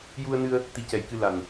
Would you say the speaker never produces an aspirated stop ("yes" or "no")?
yes